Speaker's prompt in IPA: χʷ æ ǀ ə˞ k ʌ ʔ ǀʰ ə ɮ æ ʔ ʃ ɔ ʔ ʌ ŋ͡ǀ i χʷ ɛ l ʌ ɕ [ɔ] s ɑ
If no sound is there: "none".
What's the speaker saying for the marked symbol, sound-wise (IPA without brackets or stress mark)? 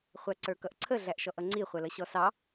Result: ɔ